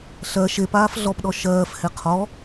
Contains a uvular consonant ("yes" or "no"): yes